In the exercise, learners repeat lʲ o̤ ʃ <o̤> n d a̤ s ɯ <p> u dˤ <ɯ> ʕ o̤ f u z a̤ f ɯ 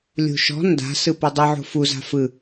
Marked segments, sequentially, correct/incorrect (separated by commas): incorrect, correct, correct